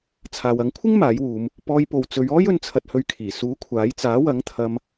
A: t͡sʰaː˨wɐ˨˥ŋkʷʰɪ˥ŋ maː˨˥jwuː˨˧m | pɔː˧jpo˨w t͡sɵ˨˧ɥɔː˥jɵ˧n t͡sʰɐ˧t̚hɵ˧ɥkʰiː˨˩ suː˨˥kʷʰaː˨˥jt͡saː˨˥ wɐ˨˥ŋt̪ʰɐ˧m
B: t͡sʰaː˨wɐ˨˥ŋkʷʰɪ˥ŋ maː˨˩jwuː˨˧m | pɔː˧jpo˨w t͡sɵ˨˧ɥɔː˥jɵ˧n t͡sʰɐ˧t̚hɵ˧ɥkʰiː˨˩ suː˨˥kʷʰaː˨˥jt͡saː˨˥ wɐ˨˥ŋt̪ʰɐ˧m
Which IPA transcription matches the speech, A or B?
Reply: A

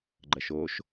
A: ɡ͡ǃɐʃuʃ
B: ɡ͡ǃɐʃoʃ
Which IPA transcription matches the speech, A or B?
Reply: B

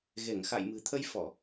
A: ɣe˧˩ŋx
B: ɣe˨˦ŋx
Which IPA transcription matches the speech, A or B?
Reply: A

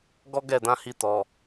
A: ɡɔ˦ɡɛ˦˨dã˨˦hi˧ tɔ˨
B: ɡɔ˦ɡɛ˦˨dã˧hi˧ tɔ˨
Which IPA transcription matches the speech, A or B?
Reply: A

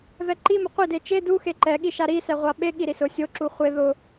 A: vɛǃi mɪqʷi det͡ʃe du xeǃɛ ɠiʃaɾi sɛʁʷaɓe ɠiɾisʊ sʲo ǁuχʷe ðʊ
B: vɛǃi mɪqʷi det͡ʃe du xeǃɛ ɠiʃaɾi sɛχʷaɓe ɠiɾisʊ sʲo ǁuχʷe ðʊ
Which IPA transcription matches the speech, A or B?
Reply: A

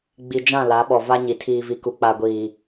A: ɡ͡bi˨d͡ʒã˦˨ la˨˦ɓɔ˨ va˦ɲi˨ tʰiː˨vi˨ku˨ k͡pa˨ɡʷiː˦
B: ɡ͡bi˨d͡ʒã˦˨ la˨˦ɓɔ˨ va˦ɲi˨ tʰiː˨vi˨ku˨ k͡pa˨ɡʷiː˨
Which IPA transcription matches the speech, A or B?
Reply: B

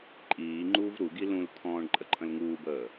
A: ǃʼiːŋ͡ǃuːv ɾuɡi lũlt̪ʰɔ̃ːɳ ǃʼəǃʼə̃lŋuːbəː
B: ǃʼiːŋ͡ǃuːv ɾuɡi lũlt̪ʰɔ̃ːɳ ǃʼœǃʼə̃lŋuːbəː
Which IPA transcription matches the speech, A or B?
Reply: A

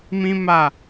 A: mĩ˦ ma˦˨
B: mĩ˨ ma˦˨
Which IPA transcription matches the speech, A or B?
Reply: A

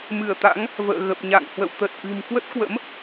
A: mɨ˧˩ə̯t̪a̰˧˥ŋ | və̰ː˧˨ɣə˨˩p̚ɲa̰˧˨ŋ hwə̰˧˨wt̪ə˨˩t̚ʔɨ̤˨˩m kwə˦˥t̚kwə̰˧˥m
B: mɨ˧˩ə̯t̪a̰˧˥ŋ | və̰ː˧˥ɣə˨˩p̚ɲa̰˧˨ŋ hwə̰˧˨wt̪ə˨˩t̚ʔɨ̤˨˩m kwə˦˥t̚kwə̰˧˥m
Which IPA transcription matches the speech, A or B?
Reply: A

